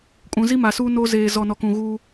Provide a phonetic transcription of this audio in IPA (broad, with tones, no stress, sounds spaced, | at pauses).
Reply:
kʼ ũ˨ z i˦ m a˨ s uː˦ n o˦ z eː˨ z ɔ˨ n ɔ˨ k ũ˨ ɣ uː˦